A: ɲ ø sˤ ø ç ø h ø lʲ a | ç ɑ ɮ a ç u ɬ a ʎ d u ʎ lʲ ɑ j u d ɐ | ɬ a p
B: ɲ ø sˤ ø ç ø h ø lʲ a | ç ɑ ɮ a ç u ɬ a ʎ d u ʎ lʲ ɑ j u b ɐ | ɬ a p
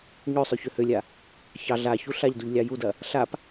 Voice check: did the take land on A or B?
A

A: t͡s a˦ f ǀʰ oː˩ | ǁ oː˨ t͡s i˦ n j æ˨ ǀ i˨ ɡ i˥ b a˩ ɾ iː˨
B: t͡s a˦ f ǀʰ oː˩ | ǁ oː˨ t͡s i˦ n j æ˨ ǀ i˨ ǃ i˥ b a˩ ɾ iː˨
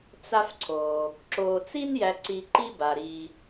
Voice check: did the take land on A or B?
B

